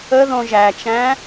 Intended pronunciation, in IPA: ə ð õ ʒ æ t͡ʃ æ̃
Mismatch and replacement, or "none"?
none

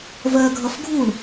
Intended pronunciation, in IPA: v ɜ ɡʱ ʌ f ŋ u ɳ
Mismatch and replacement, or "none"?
ŋ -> ɡʱ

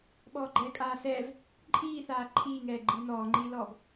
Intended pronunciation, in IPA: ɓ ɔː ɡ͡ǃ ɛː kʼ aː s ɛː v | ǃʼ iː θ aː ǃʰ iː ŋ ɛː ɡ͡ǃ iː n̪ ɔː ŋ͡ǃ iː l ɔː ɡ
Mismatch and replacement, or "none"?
none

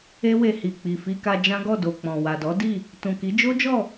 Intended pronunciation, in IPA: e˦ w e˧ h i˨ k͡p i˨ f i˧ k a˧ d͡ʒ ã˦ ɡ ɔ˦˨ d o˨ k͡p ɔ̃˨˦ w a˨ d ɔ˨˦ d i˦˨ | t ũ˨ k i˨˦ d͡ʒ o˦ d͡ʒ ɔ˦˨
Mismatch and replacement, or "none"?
ɔ̃˨˦ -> ɔ̃˨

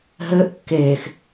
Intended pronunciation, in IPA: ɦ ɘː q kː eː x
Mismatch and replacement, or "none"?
q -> ʔ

